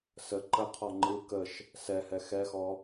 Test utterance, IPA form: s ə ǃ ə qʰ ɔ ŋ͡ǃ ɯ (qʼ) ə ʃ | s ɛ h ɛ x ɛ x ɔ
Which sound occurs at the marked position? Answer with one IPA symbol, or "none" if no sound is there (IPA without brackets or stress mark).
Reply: k